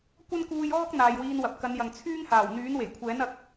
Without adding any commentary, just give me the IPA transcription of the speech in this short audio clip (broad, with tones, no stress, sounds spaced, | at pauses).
kʷ ɐ˥ n k uː˧ j ɔː˥ k̚ n̪ aː˨ j w iː˧ n w ɐ˨ p̚ k ɐ˨˧ n j ɐ˨ ŋ t͡sʰ yː˥ ŋ h aː˨˩ w n̪ yː˨˥ n w e˨˩ j kʷʰ ɛː˨˥ n ɐ˨ k̚